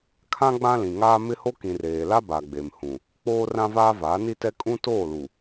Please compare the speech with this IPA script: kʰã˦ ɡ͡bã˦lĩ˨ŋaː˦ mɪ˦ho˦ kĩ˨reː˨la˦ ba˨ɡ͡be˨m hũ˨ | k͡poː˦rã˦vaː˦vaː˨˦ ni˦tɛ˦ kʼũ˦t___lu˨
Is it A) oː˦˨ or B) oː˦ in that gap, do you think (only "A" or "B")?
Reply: A